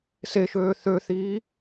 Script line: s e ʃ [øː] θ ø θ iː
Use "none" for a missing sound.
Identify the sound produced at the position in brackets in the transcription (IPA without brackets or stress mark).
øː